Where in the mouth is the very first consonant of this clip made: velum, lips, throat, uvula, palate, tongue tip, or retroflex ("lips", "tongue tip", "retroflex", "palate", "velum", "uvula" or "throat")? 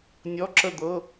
tongue tip